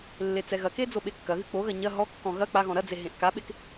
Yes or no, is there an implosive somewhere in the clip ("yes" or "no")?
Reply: yes